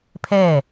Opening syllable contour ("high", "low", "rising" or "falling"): falling